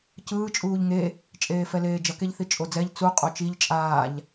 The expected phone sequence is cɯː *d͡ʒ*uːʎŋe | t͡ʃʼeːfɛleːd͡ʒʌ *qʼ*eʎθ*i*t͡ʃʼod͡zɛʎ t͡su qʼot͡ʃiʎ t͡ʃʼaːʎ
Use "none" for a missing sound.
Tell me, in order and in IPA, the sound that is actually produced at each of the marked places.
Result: t͡ʃʼ, k, i

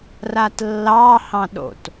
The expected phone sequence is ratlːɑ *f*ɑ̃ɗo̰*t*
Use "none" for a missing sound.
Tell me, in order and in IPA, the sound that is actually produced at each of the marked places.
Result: h, t

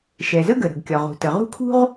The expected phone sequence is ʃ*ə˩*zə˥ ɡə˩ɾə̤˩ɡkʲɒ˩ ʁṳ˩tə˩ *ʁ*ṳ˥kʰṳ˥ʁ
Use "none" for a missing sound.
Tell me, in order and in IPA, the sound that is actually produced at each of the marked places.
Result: ɛ˩, ʁ

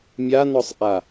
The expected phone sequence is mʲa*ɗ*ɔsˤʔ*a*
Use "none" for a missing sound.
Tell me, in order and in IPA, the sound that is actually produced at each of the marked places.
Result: n, a

